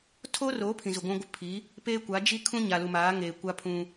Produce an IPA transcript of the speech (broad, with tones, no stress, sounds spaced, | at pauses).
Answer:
tʰ oː˦ r oː˨˦ pʰ ĩ˨ z u˨ ɡʷ ũ˦ ɡʷ ɪ˦ pʰ i˨˦ | p eː˦ kʷ a˨˦ d͡ʒ i˦ kʰ ũ˦ ɲ a˨ l u˨ m aː˨˦ ŋ eː˨ kʷ a˦ pʰ ũ˦